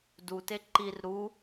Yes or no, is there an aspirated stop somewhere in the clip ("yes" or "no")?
no